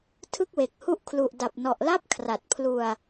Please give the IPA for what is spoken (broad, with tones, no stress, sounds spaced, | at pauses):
tʰ ɯ˥˩ k̚ w e˨˩ k̚ h u˥˩ ʔ kʰ l u˨˩ ʔ d a˨˩ p̚ n ɔ˨˩ ʔ l a˥˩ p̚ kʰ r a˨˩ t̚ pʰ l u˧ a̯